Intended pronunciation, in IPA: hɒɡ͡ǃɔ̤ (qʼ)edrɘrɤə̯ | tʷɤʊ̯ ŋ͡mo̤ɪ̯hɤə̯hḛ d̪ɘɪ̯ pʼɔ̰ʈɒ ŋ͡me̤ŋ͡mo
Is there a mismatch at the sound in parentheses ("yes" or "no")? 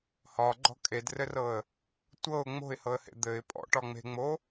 yes